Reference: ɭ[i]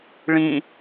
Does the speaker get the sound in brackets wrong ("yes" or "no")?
yes